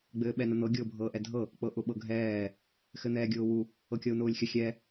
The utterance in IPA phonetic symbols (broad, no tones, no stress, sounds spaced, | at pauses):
ɡ͡b ɘː ɓ ɛ n ə n̪ ɤ ɡʲ ʊː bʱ ɤː ʔ ɛ dʱ ɤ | k͡p ɤ ʔ ʊ ɓ ɤ ɡʱ ɛː | x ɘ n̪ ɛː ɡʲ ʊː w u | ɤ kʲ ɤ u̯ n ʊː lʲ xʲ ə xʲ ɛ